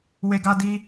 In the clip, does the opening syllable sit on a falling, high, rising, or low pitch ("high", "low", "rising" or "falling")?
high